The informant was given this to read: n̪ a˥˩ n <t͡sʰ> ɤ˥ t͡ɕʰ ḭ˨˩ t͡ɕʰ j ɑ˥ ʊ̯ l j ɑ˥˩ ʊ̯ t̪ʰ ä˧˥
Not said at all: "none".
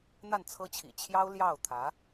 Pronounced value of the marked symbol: t͡sʰ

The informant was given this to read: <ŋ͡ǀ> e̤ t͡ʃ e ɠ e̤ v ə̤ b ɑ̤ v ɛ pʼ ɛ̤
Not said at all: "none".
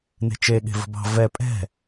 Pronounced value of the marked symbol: n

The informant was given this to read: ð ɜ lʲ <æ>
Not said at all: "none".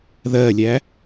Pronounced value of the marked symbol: æ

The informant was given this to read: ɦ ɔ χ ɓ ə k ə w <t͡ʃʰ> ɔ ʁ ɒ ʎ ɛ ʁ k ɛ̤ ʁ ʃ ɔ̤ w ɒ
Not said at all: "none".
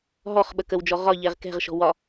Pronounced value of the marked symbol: d͡ʒ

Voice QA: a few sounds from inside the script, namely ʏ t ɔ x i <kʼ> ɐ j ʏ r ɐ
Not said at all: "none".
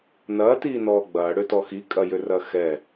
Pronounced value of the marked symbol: kʼ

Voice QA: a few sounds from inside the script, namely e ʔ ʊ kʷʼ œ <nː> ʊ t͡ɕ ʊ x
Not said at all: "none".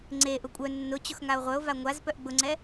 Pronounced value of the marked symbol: nː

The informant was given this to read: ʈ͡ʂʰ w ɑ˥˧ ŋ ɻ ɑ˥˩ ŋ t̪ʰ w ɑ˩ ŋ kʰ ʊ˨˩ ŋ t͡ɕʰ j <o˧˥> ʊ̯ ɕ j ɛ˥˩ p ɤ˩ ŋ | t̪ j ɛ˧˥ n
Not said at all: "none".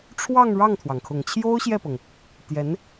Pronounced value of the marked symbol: o˥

